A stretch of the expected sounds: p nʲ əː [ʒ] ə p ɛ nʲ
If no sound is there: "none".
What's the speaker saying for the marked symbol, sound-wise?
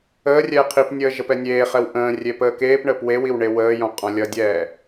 ʒ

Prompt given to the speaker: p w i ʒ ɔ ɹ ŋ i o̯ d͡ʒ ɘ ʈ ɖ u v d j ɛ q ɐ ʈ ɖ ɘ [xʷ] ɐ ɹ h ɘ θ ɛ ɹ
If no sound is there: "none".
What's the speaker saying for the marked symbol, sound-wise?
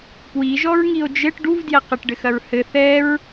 x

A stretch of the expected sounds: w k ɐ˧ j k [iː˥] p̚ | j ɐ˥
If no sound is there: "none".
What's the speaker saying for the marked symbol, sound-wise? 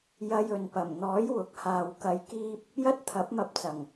iː˥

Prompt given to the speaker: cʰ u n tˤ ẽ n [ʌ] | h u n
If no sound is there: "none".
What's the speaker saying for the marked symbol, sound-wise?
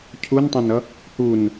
ʌ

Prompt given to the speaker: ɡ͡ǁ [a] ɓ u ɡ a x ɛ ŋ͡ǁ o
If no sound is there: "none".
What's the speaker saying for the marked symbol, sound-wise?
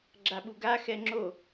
a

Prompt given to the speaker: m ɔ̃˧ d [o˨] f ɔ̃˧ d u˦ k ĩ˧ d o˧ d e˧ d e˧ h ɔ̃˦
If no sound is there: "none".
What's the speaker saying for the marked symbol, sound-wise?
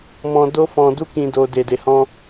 o˦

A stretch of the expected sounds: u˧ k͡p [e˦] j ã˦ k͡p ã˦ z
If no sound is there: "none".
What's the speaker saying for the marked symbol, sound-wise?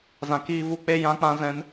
e˦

